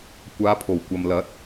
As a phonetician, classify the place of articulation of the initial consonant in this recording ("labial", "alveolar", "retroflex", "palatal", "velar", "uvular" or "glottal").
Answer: velar